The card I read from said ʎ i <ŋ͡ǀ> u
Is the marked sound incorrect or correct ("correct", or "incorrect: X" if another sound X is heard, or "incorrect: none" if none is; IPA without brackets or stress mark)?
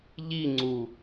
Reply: correct